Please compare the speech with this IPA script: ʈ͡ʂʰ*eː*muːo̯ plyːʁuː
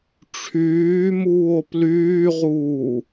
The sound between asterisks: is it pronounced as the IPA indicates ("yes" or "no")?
no